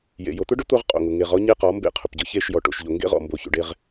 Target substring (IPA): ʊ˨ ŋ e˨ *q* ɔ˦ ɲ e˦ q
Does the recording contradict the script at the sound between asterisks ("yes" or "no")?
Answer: yes